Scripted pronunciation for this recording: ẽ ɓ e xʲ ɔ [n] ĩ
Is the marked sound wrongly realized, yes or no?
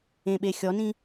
no